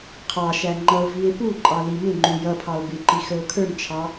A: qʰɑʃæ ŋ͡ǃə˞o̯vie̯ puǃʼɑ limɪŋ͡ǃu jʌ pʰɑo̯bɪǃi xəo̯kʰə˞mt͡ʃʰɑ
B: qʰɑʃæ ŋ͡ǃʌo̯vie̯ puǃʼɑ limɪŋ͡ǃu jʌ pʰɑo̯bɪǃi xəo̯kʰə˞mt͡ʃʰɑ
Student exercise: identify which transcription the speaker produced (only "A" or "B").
B